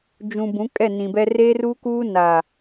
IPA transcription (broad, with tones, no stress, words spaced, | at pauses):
d͡ʒũ˨ bũ˨˦kʼɛ˦˨nĩ˨bɛ˦ reː˦ruː˦kuː˦ na˨